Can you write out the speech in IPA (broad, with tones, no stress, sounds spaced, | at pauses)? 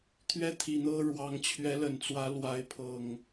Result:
t̪ʰ ɥ ɛ˦ t̪ʰ i˨˩ n̪ ɤ˦ ɻ w ɑ˨˦ ŋ t͡ɕʰ ɥ ɛ˨˦ l ə˨˩ n t͡s w ä˨˦ l w a˨˦ ɪ̯ pʰ ɤ˨˩ ŋ